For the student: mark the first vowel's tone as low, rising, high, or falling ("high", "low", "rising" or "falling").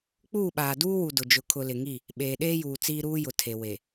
falling